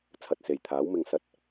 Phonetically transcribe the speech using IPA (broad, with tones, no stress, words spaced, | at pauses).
t͡sʰɐ˨t̚se˨˩jt̪ʰaː˨˥w mɪ˨ŋsɐ˧t̚